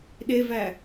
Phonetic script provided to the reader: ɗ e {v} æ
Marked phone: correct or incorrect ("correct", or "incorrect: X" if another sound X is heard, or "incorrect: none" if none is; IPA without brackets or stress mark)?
correct